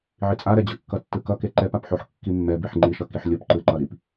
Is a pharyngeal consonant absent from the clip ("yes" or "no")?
no